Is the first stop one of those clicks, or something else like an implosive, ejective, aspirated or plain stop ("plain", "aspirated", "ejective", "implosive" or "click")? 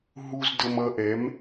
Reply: plain